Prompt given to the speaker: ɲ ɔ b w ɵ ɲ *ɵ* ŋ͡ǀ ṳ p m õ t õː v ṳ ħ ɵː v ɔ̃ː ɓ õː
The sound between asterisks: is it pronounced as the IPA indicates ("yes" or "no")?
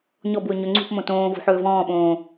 yes